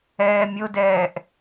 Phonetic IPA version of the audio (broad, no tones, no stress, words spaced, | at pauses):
ɛːmʲodɛːʔ